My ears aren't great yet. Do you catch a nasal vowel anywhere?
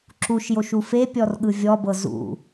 no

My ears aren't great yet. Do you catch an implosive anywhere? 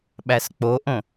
yes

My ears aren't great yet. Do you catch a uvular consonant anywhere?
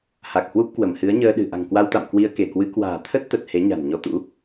no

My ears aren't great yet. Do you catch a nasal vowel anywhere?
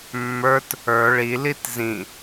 yes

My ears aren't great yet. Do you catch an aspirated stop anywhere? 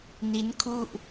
yes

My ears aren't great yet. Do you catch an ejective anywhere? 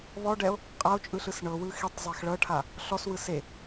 yes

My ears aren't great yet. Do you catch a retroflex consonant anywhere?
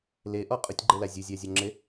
no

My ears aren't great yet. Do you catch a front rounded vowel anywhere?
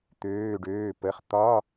yes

